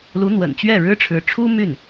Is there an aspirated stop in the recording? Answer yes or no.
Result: yes